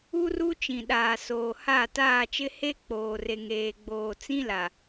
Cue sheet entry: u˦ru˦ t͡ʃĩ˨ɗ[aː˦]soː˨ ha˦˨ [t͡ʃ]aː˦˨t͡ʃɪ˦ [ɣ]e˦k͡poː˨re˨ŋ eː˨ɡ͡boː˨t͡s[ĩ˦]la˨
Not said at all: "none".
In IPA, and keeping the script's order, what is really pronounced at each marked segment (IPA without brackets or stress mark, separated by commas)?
aː˨, t, h, ĩ˦